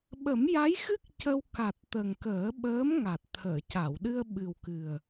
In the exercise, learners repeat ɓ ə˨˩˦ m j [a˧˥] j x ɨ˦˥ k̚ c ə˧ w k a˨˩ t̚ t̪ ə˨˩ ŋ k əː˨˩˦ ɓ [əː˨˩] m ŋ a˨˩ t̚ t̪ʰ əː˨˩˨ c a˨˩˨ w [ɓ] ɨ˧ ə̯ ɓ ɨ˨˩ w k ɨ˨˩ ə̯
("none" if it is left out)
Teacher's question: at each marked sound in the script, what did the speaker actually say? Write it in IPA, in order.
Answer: a˧˥, əː˧˥, ɗ

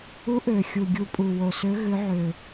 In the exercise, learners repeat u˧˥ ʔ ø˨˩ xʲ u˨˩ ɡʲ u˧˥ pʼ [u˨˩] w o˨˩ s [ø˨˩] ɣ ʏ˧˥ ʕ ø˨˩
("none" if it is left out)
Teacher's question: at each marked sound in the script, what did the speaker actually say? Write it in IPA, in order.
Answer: u˨˩, ø˧˥

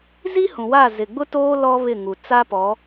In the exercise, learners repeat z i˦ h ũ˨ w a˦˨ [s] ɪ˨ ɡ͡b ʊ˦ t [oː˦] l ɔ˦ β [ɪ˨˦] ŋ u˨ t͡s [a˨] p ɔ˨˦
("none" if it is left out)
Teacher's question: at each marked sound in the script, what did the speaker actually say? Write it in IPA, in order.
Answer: z, oː˦, ɪ˦˨, a˦

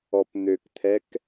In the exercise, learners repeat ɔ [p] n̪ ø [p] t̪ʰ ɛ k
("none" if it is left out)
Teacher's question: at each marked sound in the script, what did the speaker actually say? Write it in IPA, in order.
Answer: p, k

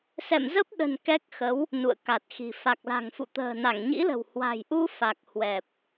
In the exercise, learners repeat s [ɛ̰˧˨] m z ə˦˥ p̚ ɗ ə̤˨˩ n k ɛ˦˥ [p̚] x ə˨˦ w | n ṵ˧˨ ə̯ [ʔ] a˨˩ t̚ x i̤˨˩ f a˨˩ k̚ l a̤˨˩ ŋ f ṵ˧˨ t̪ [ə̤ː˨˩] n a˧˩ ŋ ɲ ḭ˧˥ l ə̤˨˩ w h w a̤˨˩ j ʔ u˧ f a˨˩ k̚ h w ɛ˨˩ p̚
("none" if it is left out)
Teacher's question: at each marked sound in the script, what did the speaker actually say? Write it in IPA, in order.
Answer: ɛ̰˧˨, k̚, k, ə̤ː˨˩

